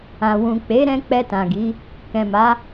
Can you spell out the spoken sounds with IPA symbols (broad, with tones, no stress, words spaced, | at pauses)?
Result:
ã˨wũ˨k͡pe˨˦ɾɛ̃˧ k͡pɛ˧tã˨ɡi˨˦ | kɛ̃˨ma˨˦